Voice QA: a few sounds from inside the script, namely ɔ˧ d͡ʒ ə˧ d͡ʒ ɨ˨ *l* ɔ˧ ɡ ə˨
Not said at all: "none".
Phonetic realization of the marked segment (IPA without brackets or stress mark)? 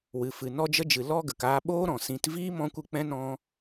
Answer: l